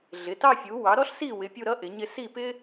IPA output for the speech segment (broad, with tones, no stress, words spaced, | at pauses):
ɮɪ˩˧˩tɑ˥˧fʲu˩˥ wɑ˩˥ɾɔ˥ɬsi˥˩wɪ˩˥ pʲu˥˧ɾʌ˥ʔɪ˩˥ɲɪ˥˧ si˥˩pɪ˥